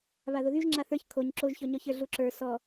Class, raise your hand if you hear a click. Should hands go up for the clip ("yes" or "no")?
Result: yes